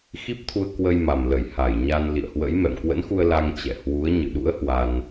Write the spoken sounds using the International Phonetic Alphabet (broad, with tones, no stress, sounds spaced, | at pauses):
x i˦˥ p̚ t̪ʰ u˧ ə̯ k w ə˧ j m a˨˩ m l ə˧˩ j h a˧˩ j ɲ a˧ n l ḭ˧˨ ə̯ h w ə̰˧˥ j m ɛ̰˧˨ m k w ə̰˧˥ n x u˧ ə̯ l a˧ ŋ t͡ɕ ɛ̰˧˨ h w u˨˦ ə̯ ɲ ɨ̰˧˨ ɗ ṵ˧˥ ə̯ h w a˧ n